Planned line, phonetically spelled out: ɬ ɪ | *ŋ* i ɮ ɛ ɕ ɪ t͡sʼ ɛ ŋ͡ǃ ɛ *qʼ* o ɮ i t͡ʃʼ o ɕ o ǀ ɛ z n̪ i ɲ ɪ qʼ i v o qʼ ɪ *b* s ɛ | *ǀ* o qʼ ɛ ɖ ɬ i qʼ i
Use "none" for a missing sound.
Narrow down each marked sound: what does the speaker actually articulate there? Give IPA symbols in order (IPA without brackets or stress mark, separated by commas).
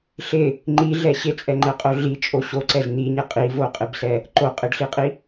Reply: ŋ͡ǃ, qʼ, b, ǃ